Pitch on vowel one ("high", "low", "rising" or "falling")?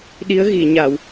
rising